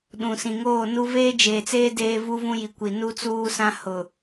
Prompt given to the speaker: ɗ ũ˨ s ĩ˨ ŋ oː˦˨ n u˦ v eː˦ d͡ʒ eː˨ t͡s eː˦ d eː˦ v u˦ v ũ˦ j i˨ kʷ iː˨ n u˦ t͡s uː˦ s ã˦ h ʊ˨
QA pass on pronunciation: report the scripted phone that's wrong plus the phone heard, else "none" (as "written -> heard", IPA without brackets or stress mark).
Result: iː˨ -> i˨